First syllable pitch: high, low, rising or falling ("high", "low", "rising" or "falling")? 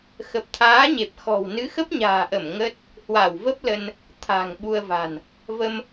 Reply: low